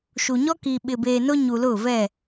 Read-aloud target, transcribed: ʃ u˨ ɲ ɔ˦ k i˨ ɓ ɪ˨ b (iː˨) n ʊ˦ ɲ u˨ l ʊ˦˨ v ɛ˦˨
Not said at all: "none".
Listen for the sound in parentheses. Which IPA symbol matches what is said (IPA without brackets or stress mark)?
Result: eː˨